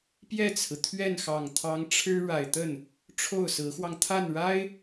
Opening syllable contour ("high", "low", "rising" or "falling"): falling